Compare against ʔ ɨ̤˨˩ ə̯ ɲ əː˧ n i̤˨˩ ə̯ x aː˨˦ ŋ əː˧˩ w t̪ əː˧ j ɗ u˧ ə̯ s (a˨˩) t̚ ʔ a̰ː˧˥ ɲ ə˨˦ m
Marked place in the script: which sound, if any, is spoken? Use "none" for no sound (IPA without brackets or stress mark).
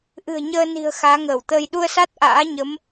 a˦˥